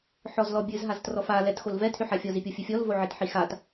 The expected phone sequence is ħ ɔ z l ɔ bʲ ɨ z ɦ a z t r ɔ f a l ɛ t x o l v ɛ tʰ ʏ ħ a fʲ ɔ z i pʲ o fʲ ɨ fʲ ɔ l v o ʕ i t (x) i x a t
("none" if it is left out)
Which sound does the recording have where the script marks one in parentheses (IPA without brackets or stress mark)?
ħ